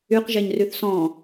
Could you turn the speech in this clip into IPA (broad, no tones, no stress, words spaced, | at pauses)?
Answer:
yqʒeɲryθ sɔ̃